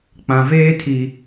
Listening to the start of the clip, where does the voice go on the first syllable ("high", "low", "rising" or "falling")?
low